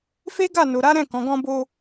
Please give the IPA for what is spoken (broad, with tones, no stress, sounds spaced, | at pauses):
f e˦ ɡ a˦˨ n o˨ ɾ a˨˦ ɾ ɛ̃˦˨ k ɔ̃˨˦ ɡ ɔ̃˧ b o˧